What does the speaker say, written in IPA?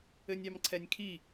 ɘ nʲ ɑ m ǀʰ ɛ nʲ kʰ i

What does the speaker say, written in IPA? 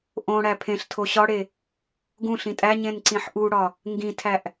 ʔ õ ɽ æ pʰ ẽ ɬ tʰ o ɕ ɒ ɽ e | ɡ ũ ɬ ĩ tʼ æ ɲ ẽ n ǀ ĩ ħ ʔ u ɽ ɒ | ŋ ɡ ĩ tʰ æ ʔ

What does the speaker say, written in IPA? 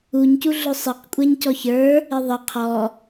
u ɲ c u ɮ ʊ sˤ ə q kʷʼ ɛ ɲ c ɔ ç ə˞ | ɪ ðˤ ə qʰ ɔ

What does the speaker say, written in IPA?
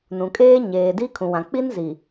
n ũ˨ kʼ eː˦ ɲ eː˨ d i˦ kʰ ũ˨ w ã˨ k͡p i˦ n z i˨

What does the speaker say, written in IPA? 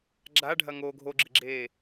ɡ͡ǁ a ɖʱ ɐ ŋ o ɡʱ o ɡ͡ǁ ɨ ɡ͡ǁ eː

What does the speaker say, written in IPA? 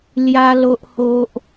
l j a˧ l o˨ ʔ h o˨ ʔ

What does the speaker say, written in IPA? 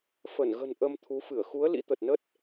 f ə˧˩ n ɣ ə̤˨˩ n ʔ ə˧ m t̪ʰ u˨˦ f ɨ˧˩ ə̯ x u˨˦ ə̯ l ḭ˧˥ t̪ ə˨˩ t̚ n ə˦˥ t̚

